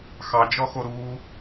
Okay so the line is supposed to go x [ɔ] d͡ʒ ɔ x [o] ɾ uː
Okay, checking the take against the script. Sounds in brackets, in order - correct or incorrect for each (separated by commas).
incorrect, correct